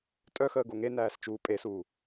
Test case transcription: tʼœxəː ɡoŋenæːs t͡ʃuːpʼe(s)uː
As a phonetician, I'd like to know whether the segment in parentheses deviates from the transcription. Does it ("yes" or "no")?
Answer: no